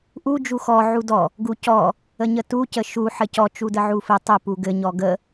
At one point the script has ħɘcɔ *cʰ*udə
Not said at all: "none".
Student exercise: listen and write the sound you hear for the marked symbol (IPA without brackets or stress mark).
t͡ʃ